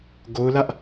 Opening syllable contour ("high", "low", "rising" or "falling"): high